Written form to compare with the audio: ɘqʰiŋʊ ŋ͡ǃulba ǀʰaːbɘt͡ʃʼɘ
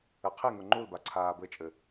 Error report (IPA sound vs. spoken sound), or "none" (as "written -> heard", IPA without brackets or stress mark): none